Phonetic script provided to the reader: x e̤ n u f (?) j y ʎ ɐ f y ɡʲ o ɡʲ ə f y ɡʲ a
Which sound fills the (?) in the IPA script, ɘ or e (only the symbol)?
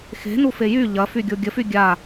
e